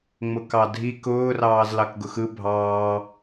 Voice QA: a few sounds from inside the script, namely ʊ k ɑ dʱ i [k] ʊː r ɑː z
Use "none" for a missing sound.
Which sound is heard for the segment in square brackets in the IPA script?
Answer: k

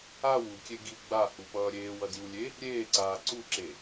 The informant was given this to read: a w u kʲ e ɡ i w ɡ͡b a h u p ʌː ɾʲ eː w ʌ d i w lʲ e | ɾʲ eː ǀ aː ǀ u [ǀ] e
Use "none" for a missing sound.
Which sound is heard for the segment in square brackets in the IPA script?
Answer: ǁ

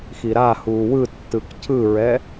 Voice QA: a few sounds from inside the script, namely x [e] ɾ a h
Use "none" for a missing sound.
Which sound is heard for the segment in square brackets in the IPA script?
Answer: i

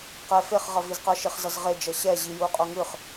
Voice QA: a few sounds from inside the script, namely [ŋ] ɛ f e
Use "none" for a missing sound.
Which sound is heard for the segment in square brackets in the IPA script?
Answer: q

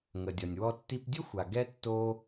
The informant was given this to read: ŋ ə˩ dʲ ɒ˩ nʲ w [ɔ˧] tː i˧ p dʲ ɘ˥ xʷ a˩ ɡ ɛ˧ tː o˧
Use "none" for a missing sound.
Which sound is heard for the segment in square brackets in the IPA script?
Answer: ɔ˧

